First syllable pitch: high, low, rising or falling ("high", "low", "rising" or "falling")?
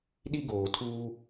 high